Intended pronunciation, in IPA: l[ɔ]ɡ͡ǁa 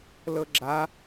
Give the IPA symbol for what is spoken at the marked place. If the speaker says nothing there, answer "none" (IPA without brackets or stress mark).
ɤ